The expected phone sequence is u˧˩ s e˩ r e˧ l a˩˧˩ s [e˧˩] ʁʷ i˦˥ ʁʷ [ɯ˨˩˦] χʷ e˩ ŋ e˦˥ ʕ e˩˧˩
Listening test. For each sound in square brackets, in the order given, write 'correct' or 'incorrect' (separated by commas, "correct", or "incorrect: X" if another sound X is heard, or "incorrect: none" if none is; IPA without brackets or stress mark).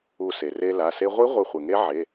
incorrect: e˧, incorrect: ɯ˧˩